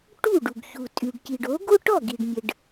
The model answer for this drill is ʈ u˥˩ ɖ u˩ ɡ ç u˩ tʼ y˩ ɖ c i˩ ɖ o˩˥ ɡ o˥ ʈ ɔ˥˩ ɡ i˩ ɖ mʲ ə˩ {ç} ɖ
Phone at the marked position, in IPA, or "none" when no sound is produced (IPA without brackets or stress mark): none